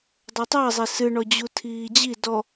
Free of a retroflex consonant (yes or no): no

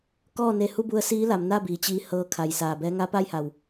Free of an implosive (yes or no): yes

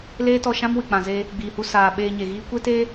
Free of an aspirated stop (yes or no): yes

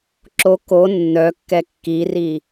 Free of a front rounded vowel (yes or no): no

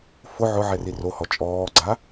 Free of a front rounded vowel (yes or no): yes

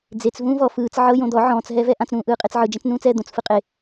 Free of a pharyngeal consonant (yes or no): no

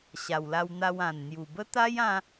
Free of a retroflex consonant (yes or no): yes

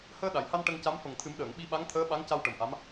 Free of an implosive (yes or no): no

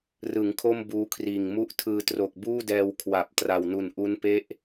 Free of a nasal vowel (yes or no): yes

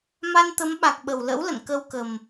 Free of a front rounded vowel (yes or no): yes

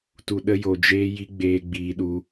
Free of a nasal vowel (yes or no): yes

